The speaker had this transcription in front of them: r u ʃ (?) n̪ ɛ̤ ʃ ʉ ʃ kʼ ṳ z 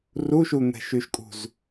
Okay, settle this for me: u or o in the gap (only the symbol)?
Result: u